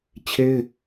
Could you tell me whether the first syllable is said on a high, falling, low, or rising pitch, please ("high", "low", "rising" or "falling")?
high